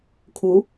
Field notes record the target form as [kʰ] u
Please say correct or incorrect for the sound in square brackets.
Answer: correct